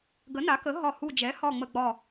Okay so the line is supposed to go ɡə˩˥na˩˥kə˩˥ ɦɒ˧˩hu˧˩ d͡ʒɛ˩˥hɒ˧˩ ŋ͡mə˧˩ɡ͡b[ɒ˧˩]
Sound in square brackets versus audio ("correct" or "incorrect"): correct